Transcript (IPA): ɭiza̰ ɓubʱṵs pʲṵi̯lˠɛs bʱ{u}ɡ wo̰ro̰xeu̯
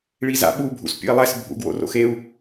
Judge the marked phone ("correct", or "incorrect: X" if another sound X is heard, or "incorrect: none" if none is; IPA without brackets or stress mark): incorrect: ṵ